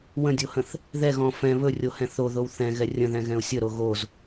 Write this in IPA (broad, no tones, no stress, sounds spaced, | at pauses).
w ə̃ dʲ o h ə̃ θ | ð ɛ ɣ ɔ̃ f ɛ̃ β ɵ rʲ o h ɛ̃ θ o ð o w θ ɛ̃ ɣ ɛ rʲ ə̃ ð ɛ̃ ɣ ɛ̃ ʊ̯ sʲ ə ɾ o ɣ o z